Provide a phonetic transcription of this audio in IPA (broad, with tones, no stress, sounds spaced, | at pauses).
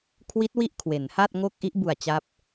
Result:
kʰ w i˦˥ t̚ w i˦˥ ʔ kʰ w e˩˦ n h a˥˩ t̚ ŋ o˥˩ k̚ ʔ i˦˥ ʔ b u˨˩ a̯ t͡ɕ a˦˥ p̚